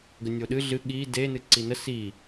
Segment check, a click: present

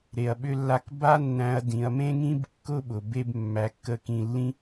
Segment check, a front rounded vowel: present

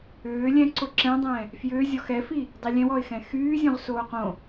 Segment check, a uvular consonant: present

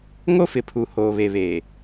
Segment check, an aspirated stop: present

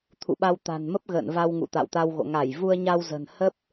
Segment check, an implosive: present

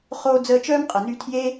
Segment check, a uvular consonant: present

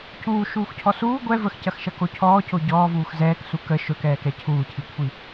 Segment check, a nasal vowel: absent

